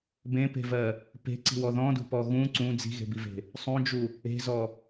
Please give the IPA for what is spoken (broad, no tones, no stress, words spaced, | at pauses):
bẽpe̤vɜ | pe̤ǀi̤wɔ ðɔ̃dṳpɔ ɣũ ǀũ d͡zi̤ɣe̤bive̤ | sˤũd͡ʒu | e̤zɔ